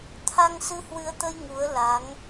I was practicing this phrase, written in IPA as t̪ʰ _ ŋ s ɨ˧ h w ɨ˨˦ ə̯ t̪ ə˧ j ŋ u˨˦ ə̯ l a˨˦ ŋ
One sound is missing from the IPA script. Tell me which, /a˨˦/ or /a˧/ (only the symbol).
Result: a˧